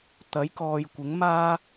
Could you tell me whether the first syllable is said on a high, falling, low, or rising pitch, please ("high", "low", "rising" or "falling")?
rising